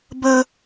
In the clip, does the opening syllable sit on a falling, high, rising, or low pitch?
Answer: high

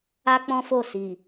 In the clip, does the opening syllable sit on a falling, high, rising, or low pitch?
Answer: high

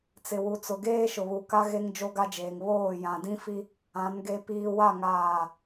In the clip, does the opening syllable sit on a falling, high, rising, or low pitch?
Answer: low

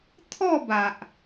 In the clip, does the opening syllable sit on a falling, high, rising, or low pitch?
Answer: falling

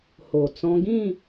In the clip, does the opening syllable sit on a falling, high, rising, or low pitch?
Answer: low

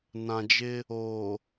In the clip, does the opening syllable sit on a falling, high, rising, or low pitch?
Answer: low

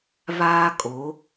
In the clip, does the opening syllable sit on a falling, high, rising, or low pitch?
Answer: high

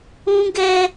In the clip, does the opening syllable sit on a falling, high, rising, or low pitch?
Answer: high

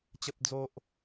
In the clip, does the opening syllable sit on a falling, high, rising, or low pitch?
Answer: high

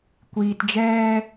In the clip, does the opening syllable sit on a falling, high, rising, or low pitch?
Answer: low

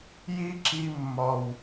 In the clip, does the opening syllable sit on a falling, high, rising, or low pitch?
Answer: high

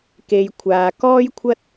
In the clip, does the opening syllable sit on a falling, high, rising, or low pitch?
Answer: low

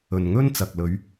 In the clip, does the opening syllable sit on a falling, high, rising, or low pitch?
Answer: low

